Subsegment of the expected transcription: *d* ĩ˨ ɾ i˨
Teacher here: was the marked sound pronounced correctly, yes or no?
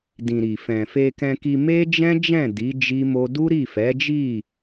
yes